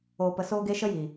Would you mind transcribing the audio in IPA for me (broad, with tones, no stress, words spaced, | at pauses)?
oː˨pə˨ soː˧ɡe˧ ʃə˦jiː˨